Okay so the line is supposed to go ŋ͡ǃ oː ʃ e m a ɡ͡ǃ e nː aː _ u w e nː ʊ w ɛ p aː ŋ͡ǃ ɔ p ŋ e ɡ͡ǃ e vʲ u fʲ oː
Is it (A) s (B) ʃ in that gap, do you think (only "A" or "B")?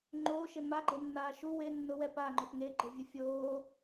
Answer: B